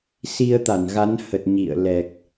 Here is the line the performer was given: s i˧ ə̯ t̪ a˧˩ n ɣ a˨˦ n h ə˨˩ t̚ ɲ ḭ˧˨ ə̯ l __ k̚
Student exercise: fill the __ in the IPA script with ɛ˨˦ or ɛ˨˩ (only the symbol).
ɛ˨˩